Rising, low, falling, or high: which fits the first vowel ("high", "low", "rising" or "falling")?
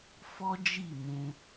high